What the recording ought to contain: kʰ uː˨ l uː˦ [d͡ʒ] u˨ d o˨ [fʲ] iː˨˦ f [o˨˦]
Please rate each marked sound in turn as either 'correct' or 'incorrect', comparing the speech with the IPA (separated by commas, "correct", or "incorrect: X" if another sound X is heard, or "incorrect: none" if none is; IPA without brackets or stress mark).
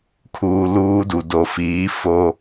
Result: incorrect: d, incorrect: f, incorrect: o˦